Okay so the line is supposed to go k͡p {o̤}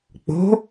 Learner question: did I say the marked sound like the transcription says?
yes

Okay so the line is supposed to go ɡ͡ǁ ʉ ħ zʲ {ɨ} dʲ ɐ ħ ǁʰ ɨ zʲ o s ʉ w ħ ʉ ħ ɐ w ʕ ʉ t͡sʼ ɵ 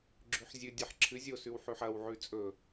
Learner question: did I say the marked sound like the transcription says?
yes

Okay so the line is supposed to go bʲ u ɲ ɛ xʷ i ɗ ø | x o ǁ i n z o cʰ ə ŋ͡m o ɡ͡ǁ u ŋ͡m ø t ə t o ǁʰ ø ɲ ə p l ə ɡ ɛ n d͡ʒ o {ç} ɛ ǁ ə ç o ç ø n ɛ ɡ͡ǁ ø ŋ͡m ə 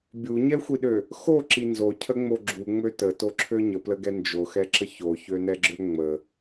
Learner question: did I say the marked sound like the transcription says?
no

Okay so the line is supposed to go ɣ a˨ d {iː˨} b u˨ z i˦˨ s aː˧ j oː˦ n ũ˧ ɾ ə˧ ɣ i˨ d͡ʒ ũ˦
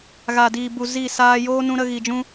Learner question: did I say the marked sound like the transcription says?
yes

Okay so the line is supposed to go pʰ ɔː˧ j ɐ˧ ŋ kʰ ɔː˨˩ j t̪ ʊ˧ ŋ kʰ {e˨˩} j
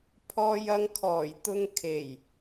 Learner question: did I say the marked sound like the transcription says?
yes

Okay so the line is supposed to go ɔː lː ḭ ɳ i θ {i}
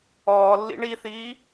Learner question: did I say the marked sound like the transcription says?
no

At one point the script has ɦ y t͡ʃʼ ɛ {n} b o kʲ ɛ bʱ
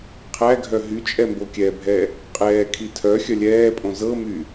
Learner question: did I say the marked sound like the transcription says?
no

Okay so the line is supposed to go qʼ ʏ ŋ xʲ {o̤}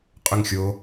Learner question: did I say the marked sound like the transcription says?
no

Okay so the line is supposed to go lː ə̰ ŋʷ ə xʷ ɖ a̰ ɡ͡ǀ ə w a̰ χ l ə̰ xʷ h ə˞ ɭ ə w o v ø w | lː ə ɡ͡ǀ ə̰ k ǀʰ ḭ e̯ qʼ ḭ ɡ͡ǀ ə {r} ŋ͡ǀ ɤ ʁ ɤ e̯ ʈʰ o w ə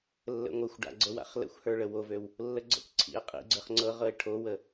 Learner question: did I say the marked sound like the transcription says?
no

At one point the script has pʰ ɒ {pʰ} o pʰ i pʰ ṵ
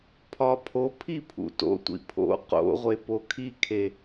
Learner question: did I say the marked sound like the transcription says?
yes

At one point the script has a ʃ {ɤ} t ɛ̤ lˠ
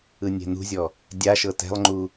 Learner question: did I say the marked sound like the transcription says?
yes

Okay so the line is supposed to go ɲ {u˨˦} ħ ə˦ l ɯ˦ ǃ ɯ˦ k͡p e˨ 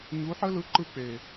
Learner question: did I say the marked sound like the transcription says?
yes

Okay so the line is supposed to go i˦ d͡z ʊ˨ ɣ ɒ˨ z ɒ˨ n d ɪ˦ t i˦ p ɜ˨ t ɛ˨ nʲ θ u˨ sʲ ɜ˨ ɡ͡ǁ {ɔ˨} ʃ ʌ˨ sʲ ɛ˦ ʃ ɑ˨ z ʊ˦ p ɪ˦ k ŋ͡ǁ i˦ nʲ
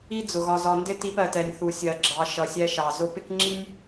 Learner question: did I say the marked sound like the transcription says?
no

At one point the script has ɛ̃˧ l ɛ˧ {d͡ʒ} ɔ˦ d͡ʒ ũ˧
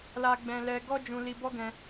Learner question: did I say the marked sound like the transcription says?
no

